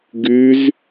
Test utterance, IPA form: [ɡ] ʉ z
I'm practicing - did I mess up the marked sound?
no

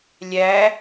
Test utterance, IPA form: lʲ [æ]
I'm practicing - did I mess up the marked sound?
no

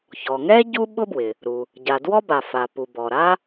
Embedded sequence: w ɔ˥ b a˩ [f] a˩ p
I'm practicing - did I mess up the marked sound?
no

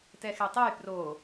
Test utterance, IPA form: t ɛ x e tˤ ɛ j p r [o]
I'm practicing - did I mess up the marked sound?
no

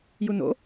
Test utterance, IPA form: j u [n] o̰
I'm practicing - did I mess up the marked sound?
no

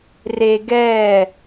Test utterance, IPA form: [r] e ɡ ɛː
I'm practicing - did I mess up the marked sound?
no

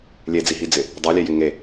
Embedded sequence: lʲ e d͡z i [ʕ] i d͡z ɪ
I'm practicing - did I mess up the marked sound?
yes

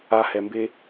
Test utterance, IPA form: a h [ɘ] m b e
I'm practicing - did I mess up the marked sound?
yes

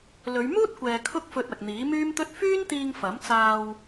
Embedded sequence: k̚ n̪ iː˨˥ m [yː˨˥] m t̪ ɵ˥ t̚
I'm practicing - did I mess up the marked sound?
yes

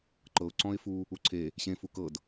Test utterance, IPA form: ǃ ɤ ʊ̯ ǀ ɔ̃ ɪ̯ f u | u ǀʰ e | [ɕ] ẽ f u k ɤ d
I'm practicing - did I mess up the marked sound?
no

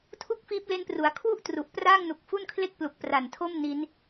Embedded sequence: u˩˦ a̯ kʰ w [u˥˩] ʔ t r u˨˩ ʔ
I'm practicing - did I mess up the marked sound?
no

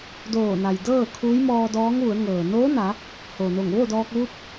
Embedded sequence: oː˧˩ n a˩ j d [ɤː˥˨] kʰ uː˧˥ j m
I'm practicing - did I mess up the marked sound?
no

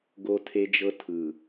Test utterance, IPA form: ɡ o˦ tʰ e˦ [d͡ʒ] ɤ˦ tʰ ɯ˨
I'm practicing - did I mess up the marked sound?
no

